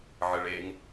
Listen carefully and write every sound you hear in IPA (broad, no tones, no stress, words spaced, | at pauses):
ʕɘɭeŋ